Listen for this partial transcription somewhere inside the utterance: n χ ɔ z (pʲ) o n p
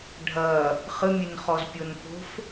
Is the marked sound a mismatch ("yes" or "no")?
no